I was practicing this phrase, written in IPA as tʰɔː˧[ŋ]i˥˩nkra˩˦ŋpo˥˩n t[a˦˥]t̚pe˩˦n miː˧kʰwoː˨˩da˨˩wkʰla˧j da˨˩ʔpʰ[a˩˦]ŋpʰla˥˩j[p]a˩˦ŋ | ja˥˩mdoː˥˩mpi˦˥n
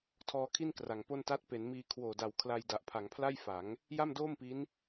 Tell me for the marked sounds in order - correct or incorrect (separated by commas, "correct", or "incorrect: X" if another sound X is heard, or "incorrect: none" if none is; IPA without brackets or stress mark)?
incorrect: kʰ, correct, correct, incorrect: f